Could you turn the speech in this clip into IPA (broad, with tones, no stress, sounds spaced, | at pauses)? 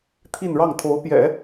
t̪ʰ i˥˧ n ɻ ɑ˥˩ ŋ t̪ʰ o˧˥ ʊ̯ p j ɛ̰˨˩˦